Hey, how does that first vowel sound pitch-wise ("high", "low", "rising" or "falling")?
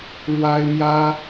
high